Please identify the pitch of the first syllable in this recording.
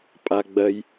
low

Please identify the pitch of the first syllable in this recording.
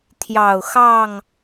low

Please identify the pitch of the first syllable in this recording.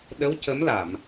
rising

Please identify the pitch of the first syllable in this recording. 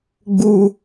high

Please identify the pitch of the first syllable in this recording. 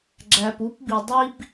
low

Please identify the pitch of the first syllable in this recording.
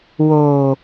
low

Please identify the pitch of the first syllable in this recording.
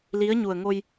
rising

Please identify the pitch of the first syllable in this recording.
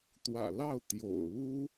low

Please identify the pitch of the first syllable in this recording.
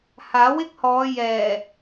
rising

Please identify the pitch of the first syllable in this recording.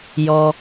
low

